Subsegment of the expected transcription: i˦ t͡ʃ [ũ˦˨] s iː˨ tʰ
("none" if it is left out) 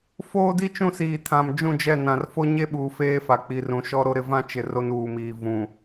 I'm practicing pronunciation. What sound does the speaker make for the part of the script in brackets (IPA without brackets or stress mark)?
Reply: ũ˦˨